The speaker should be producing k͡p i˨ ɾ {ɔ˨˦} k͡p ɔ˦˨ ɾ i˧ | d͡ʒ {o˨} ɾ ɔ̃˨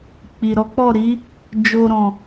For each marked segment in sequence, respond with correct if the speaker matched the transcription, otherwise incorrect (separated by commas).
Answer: correct, correct